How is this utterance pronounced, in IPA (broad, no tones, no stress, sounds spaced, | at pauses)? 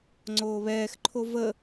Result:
ŋ͡ǀ oː β ɛː x ǃʰ o v ə